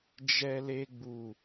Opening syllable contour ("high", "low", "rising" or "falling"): high